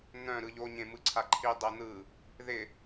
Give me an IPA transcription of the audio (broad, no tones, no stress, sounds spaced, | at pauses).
n̪ œ̃ ɾ ɯ ʎ o ɲ ẽ m ɯ ǀʰ a ǃʰ i dˤ ɜ n̪ ɯ | ð ɪ